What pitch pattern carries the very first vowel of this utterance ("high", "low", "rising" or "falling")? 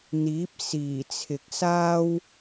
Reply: rising